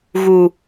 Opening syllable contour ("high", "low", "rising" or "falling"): low